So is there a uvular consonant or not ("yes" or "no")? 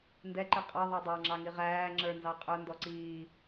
yes